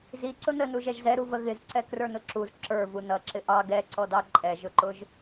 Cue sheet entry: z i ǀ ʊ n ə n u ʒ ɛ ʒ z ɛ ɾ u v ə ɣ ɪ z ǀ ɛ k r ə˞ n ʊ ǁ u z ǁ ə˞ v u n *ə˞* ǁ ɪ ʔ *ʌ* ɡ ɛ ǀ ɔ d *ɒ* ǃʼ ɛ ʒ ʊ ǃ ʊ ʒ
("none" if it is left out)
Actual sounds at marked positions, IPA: ʌ, ɑ, ɑ

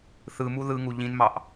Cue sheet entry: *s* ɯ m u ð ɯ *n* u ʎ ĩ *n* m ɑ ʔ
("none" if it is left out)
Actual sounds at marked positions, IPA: θ, ŋ, n

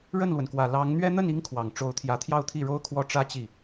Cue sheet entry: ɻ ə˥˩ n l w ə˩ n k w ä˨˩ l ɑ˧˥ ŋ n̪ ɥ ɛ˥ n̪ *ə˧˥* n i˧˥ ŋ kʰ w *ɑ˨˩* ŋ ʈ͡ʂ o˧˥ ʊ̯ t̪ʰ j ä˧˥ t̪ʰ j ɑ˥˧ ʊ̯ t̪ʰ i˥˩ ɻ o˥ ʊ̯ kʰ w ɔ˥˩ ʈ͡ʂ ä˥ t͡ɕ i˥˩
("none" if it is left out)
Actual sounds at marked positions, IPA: ə˥˩, ɑ˨˩

